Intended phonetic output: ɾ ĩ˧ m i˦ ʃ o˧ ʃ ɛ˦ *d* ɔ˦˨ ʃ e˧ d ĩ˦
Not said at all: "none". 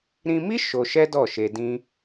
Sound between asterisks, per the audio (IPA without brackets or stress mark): d